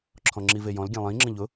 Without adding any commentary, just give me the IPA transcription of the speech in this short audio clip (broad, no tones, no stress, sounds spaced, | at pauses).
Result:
ǁʰ ɔ̃ ŋ͡ǁ i v e j ɔ̃ l ɡʲ ẽ lˠ ĩ ŋ͡ǁ ə̃ ʎ ʊ